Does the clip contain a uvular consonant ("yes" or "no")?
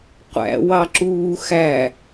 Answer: yes